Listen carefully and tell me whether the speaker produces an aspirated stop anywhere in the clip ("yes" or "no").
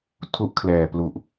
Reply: yes